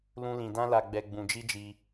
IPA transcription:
lũ˦lĩ˧ dã˦la˧ɡ͡bɛ˧ ɡ͡bũ˧d͡ʒi˦d͡ʒi˧

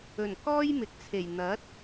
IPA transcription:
ɵ˨˩n kɔː˥jmɪ˨k̚t͡sʰe˨˩j n̪ɐ˨˥t̚

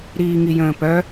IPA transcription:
ɾiːŋijə̃ːpœ

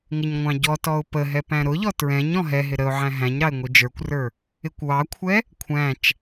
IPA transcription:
ŋɪɲŋʷɑ̃ɟɔtɔʊ̯ pəɦɛ pæ̃ɾʊʎɔ tɹɛ̃ɲ ɔ̃ɦɛɦɪ ɾəʊ̯ʕæ̃ ɦæ̃ɲɾɑɪ̯ ŋʷid͡ʒə˞kʷrə˞ | ɪkʷwɑkʷʰɛ | kʷʰæ̃t͡ʃ

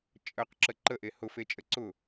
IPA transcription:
t͡ʃʼəq ǁəǃəʔe hʊfet͡ʃʼə ǀʊ

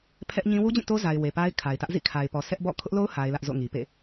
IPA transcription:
pʰɛ˦ʔɲĩ˦ wu˦d͡ʑĩ˦˨to˦za˨ɪ̯ we˨pa˦ɪ̯kʰa˨ɪ̯tä˦ʔ zḭ˦˨kʰa˨ɪ̯pɔ˨ sʰɛ˦ʔbɔ̰˦˨ kʰʊ˦ʔlo˦ʊ̯ ha˦ɪ̯lä˦ʔ zo̰˦˨ŋi˨pḛ˦˨

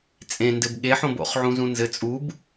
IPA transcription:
t͡sʼẽndɘb ɠeħõbo̰χʕũ zũnzɘ t͡sʼub

